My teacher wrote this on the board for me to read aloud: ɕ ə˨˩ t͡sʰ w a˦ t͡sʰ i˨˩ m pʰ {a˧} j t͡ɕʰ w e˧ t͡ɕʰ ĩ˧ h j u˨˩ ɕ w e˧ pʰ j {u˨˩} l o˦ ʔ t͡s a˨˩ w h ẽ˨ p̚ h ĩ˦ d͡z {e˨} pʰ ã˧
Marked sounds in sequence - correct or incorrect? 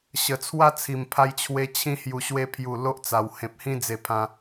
correct, correct, incorrect

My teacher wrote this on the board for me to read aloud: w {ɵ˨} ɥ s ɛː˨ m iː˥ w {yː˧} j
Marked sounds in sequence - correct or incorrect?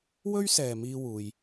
incorrect, incorrect

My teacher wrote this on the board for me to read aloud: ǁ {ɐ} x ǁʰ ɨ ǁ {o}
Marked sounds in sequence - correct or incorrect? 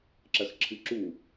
correct, incorrect

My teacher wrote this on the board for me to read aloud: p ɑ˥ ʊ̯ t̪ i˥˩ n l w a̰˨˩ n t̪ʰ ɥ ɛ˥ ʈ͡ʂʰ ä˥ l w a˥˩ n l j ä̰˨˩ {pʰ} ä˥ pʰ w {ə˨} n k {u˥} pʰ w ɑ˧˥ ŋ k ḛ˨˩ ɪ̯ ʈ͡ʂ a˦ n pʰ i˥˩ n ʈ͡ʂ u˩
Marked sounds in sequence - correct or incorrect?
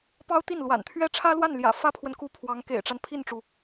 incorrect, correct, correct

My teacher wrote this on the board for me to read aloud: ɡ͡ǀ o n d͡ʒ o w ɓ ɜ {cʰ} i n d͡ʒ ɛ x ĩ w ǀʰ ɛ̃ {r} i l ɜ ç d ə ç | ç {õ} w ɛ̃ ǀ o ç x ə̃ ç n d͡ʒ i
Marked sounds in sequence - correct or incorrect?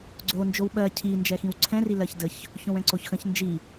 correct, correct, correct

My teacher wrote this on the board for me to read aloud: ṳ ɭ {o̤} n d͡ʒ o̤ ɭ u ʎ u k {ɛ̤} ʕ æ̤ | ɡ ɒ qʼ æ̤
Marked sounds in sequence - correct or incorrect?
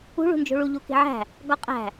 incorrect, incorrect

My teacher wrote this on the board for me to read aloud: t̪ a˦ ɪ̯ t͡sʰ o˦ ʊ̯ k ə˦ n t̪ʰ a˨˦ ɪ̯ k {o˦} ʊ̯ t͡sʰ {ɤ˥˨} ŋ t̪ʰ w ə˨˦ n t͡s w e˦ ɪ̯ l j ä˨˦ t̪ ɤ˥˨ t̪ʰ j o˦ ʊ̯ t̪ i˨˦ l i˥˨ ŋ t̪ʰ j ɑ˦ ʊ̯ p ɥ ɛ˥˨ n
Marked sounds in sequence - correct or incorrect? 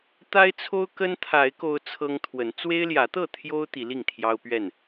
correct, incorrect

